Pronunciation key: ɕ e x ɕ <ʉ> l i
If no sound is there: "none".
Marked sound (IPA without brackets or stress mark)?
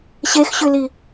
ʉ